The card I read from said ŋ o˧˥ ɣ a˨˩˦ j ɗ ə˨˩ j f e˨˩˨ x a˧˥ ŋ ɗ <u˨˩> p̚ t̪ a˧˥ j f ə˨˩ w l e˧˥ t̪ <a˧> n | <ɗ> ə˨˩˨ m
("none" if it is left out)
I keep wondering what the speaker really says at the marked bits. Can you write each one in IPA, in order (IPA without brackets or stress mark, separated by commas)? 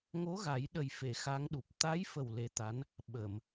u˨˩, a˧˥, ɓ